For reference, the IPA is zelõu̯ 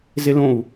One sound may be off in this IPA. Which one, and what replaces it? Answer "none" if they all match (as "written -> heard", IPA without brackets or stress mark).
none